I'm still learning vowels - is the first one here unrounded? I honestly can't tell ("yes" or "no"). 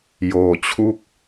no